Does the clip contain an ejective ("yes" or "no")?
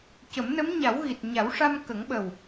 no